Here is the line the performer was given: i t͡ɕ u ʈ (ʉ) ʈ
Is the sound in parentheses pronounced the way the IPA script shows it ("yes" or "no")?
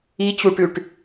yes